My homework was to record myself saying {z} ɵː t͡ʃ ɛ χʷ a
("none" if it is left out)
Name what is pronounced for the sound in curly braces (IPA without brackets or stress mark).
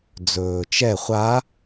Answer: d͡z